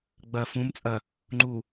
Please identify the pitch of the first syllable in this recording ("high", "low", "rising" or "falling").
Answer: low